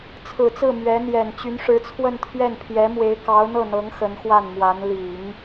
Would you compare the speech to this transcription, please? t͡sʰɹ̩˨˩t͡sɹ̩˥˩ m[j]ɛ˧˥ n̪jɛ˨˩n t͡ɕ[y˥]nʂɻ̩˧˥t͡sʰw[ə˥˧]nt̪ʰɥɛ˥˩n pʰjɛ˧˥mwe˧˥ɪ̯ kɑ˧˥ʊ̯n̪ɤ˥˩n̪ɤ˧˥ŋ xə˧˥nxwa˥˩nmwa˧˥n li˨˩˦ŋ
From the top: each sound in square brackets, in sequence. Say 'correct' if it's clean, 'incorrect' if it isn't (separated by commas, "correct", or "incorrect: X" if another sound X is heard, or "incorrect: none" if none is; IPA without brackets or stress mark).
incorrect: ɥ, incorrect: y˧˥, correct